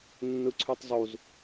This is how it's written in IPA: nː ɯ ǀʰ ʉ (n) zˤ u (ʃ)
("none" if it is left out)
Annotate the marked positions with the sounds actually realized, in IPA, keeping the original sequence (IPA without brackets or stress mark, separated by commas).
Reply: tˤ, z